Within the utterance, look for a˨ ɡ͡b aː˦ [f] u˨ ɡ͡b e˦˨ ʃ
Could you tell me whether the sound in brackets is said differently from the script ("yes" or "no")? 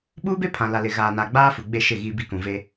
no